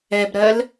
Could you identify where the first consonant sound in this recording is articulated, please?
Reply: labial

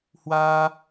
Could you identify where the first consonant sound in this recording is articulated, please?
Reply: glottal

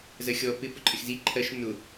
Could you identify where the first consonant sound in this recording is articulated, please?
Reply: alveolar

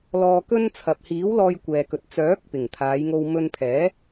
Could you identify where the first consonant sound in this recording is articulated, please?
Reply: alveolar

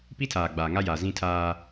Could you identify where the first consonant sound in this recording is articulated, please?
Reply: labial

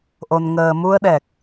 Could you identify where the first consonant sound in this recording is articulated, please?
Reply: glottal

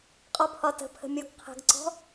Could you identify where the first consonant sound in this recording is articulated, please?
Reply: uvular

